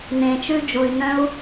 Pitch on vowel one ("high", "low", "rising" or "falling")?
low